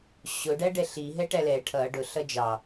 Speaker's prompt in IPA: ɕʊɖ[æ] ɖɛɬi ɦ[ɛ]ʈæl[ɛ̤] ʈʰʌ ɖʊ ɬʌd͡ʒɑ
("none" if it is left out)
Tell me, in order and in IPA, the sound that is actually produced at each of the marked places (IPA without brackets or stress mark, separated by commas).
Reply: æ, ɛ, ɛ